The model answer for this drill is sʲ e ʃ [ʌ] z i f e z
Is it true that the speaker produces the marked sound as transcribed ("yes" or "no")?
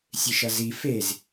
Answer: yes